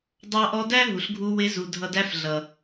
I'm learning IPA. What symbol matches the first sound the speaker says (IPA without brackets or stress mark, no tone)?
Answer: dˤ